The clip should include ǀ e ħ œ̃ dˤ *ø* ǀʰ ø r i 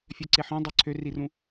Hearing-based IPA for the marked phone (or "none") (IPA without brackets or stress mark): ø